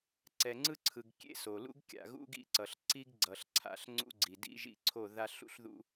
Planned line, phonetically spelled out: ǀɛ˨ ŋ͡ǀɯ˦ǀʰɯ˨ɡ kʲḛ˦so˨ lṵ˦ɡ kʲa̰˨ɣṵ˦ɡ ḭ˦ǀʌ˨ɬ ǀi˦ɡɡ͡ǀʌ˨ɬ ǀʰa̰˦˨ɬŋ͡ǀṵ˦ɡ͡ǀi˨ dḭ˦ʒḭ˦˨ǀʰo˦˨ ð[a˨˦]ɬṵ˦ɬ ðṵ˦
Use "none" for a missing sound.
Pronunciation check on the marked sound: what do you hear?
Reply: a˦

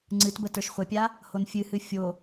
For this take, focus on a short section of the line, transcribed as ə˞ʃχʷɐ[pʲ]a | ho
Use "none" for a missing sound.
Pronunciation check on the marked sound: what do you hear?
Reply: pʲ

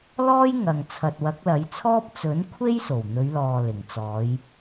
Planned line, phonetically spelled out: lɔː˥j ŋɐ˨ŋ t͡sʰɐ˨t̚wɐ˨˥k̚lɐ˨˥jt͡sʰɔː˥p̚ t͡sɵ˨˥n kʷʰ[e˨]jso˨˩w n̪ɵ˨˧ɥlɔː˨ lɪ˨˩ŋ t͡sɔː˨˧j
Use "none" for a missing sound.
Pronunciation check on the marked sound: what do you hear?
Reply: e˥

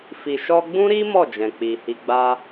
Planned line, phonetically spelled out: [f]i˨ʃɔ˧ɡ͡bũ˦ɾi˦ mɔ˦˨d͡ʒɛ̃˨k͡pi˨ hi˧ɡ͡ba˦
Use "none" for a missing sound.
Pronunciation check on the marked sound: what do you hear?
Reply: f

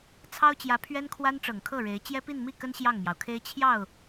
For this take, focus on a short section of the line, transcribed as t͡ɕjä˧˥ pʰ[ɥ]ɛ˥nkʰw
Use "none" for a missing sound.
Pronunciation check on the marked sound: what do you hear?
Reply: ɥ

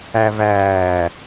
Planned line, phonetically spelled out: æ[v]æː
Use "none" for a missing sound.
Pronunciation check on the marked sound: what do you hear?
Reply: v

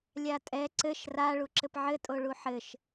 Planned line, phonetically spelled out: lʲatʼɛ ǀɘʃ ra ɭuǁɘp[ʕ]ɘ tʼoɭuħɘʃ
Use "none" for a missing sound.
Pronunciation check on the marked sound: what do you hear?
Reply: ʕ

